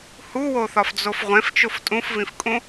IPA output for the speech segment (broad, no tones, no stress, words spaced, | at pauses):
huwoθɒfd͡zof ʁʷẽft͡ʃof tʼũfvĩfkʼũ